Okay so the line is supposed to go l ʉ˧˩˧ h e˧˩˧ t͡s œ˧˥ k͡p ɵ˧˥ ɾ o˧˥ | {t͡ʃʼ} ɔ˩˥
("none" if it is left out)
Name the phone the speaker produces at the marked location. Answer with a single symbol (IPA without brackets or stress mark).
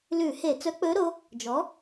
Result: d͡ʒ